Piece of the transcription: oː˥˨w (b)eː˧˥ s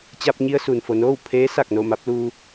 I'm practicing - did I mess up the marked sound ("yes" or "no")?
yes